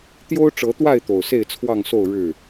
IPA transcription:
t̪jo˦ʊ̯ʈ͡ʂɤ˨˦t̪wa˥˨ɪ̯ t̪o˨˩ʊ̯se˥˨ɪ̯t͡sʰwɑ˥˨ŋso˥˨ʊ̯ ɻɻ̩˥˨

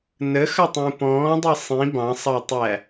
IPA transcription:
nəxʌtˤũ pɔ̃ːdˤɜ sˤĩ bɑ̃sˤɑtˤæ

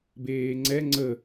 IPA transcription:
beːŋ͡ǀɛ ŋ͡ǀə

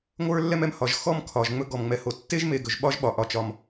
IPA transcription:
ŋʷə˞˦lːɛ˦mɛ˨m hɒ˩ʒ xɔ˦mkʰɒ˩ʒ ŋ͡mɵ˦ ɡɔ˩mŋ͡mɛ˨ho˨ tːe˥ʒme˨ɡɵ˩ʒ ɓɒ˥ʒɓɒ˨ ʔɒ˨t͡ʃɒ˨m

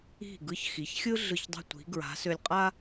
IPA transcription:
i̤˧˩ ɡɯ˧çxi˩˧çxʲɯ˥ ɮɯ˧˩çdˤi̤˧˩ tʷi̤˩˧ɡɹa̤˩˧ sø˧lʲqʼa˥

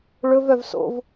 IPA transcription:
ɭɵv œvso̰v

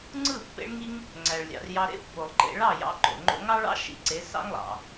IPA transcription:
ŋ͡ǀɯ˦˨ pːḛ˧ɭŋi˧ŋ | ŋ͡ǀæ˨ɭlʲɑ̰˨rjɑ˧ ɾḛ˦pːo˨lˠǃḛ˧ ɭɑ˦˨jɑ̰˧ǃo̰˨ŋ͡ǃo̰˧ ŋɑ˦ɭɑ̰˦ ʃḭ˨˦ǀe˨˦sɑ̰˦ŋlˠɑ̰˨

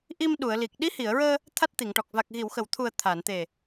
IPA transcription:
ʔi˧mɗu˨˩˨ə̯li˨˩k̚ ɗi˧˥hi˨˩˨ə̯ɹəː˧ | t̪ʰa˦˥t̚t̪i˨˩˨ŋʈɔ˨˩k̚ va˨˩k̚ɣi˨˩˨wxə˨˩˨wt̪ʰu˨˩ə̯ t̪ʰa˨˩˨n t̪e˨˩

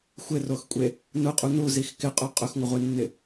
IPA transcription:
xʷɪroxkʷʼe | nʊqʼu nuzix kɪqʼo qʼʊxŋʷɪʁʷenːɪ

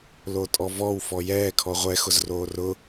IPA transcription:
lotʼɔvɔw fɔjɛː kʰɔʁʷɛ xʊzroːrʊ

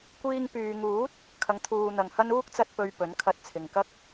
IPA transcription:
kʷiː˧ŋpyː˨ŋuː˨˥t̚ | kʰɐ˨˧ŋt̪ʰuː˨ n̪ɐ˨ŋhɐ˥n uː˥k̚t͡sɐ˧t̚ pɵ˨ɥ pɵ˨˥nkʰɐ˧t̚t͡sʰɪ˨ŋkɐ˥k̚

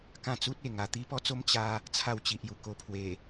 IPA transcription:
kã˥˧ t͡su˦t̚e˨˩ŋa˨˩ t̪i˦pɔ˦t͡so˦m t͡ɕa˦ | t͡sʰa˥˧wt͡ɕi˨ʔju˨˩ ko˧pʰwe˨˩

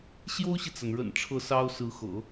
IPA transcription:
ɕjo˥ʊ̯ɕi˨t͡sa˩nɻə̰˨˩n ʈ͡ʂʰɤ˥˩sɑ˥ʊ̯ sɹ̩˧˥xɤ̰˨˩˦

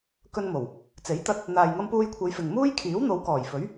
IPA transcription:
kɵ˧nmo˨˩w | t͡se˨˥jt̪ɐ˧t̚ | n̪aː˨jŋɐ˧mpuː˧jkʷʰe˨˧j fɪ˨ŋmuː˥j kʰiː˨˥wn̪o˨˧wkɔː˨˩jfɵ˨˥ɥ

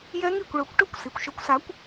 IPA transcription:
jɛ˦˥ŋi˥˩kʷ ɭɵ˨˩˦kʷʈɵ˥˩kʷ si˩kʷʃɵ˨˥kʷsa˨˥kʷ

